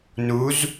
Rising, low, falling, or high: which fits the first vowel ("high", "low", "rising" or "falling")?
rising